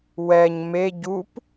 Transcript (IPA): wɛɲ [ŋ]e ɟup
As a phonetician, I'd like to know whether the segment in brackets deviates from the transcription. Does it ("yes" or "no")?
yes